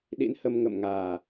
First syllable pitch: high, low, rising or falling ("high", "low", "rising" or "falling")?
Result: rising